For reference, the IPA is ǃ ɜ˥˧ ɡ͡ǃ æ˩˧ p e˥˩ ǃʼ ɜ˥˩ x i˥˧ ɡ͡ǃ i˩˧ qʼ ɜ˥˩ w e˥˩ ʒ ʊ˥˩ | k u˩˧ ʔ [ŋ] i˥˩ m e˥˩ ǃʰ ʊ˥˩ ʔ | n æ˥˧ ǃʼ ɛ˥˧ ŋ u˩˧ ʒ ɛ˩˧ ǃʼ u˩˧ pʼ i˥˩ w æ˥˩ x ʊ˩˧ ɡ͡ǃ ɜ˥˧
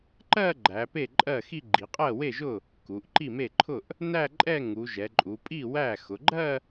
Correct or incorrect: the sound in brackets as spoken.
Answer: incorrect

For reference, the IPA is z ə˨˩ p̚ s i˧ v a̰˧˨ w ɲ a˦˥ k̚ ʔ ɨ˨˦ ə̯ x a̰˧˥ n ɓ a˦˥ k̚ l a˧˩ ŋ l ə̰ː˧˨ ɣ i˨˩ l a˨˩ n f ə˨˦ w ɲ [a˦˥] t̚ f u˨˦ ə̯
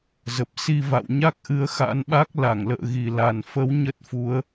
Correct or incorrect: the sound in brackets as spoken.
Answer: incorrect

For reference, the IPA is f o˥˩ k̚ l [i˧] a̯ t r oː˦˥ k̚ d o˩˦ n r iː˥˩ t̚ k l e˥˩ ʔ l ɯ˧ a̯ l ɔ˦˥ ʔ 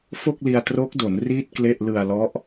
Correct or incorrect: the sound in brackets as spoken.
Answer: correct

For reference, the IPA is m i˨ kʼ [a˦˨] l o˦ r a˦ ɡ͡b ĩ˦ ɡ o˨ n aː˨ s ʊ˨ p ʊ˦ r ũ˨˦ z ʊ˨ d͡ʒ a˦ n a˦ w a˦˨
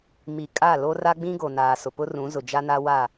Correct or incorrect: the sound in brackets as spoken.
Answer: correct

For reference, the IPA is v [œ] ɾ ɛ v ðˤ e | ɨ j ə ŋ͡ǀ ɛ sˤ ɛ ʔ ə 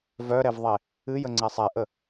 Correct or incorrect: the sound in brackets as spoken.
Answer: correct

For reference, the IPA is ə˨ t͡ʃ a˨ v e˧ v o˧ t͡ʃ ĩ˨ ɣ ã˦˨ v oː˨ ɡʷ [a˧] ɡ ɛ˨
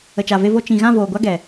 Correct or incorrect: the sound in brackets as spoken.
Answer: incorrect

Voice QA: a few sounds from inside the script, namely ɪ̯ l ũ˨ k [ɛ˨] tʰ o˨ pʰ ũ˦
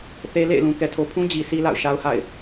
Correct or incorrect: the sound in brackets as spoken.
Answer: correct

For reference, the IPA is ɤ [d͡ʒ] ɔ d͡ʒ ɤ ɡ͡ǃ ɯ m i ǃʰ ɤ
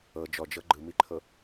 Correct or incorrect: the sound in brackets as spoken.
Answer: correct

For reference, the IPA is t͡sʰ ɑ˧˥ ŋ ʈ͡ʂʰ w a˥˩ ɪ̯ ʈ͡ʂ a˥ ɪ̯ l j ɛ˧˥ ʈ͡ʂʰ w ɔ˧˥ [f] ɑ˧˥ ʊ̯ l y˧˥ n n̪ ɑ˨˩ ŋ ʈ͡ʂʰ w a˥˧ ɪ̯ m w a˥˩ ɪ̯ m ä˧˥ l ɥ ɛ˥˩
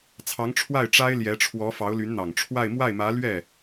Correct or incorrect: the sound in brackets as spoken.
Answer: correct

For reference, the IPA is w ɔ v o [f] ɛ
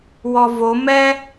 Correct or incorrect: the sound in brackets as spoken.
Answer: incorrect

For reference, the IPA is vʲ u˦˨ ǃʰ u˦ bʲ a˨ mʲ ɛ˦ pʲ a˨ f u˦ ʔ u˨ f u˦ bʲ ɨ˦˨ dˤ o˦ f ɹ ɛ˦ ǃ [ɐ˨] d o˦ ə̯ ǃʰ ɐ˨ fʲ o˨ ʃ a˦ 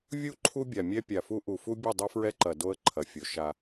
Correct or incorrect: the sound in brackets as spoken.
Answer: correct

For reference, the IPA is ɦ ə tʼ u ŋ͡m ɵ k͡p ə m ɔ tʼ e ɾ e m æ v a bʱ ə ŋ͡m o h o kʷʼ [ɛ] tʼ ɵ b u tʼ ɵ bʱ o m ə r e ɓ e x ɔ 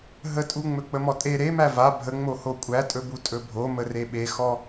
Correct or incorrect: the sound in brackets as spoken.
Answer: incorrect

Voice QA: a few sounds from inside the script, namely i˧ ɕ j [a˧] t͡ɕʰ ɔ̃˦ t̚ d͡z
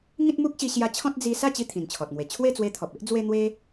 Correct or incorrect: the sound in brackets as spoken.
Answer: correct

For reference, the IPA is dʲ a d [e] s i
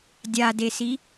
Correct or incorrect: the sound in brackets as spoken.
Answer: correct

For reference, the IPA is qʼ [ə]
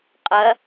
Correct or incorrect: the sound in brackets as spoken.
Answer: incorrect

